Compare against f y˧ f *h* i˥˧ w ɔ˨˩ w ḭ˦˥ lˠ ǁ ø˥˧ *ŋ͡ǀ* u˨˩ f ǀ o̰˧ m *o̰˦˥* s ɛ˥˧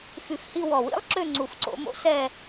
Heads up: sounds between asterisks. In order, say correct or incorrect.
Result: correct, correct, correct

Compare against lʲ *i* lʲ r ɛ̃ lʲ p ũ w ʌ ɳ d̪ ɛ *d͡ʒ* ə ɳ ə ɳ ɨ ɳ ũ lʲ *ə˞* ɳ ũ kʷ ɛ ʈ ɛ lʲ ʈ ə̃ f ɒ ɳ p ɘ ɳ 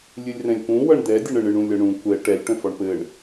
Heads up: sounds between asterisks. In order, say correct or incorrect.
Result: incorrect: ɨ, incorrect: dʲ, incorrect: ʌ

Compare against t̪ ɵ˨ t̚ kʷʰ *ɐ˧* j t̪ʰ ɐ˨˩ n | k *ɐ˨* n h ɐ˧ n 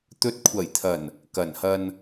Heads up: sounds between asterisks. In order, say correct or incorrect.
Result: incorrect: ɐ˨˩, incorrect: ɐ˨˩

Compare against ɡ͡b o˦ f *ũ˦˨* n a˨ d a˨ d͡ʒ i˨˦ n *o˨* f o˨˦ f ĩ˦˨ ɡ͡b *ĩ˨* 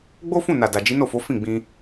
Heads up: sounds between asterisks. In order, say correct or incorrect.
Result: correct, incorrect: o˦˨, incorrect: ĩ˧

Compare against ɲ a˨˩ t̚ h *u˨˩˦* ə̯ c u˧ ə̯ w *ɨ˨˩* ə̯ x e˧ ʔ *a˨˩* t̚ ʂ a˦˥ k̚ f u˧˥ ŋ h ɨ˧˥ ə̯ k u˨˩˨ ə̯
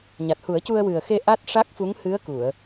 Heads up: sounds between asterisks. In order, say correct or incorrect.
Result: correct, correct, incorrect: a˦˥

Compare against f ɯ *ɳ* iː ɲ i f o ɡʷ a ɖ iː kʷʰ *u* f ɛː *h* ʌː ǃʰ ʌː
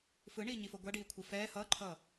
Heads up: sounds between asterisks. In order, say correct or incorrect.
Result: correct, incorrect: ɯ, correct

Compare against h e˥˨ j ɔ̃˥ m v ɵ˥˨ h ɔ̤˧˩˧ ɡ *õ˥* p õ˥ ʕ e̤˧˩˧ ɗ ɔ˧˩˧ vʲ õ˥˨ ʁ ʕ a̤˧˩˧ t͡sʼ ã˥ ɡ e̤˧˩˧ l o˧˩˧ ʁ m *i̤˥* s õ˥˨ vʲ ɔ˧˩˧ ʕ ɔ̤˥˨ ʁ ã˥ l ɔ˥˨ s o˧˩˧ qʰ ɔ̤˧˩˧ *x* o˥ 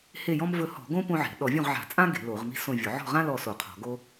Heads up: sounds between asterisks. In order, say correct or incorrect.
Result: correct, correct, incorrect: ɡ

